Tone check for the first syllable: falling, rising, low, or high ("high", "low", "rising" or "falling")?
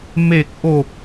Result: low